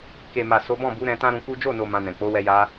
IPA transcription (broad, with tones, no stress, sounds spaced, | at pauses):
k e˨ m a˨ s o˨˦ b ɔ̃˦˨ b u˨˦ ɾ ɛ̃˧ t ã˦ ɾ ũ˧ k u˦ d͡ʒ o˦˨ n o˨ m ã˧ n ɛ̃˨ k͡p o˨˦ w ɛ˧ j a˧